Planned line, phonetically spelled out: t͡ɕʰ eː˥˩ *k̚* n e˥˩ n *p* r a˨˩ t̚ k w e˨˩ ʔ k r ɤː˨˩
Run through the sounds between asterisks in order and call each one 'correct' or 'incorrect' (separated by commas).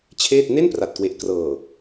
incorrect, correct